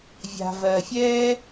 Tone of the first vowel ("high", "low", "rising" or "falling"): low